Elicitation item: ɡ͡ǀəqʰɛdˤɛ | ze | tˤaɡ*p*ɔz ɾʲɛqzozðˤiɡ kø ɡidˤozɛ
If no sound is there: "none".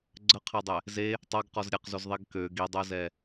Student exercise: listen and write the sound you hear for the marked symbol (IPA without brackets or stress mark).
q